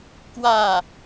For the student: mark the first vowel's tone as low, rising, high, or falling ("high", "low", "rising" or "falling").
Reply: falling